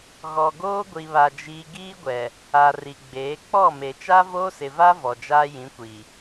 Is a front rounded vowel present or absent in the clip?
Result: absent